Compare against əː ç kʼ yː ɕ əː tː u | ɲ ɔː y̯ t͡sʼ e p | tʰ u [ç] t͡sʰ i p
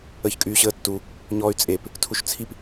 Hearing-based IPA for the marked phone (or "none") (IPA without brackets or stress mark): ʃ